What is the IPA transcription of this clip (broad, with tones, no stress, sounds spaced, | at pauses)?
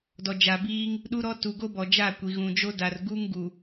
d ɔ˨ d͡ʒ a˨ b iː˦ ŋ | ɗ u˦ ɾ ɔ˦ t u˨ ɡ o˦ b ɔ˨ d͡ʒ a˦˨ kʷ i˨ ɣ ũ˨ d͡ʒ o˦ d a˨ r ɡ u˦ ŋ ɡ u˨